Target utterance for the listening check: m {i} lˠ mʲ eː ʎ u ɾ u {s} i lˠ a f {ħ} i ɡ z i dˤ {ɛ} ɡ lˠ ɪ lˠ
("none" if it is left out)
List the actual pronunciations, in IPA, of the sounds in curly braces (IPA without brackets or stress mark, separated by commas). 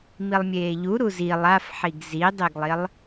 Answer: i, z, ħ, e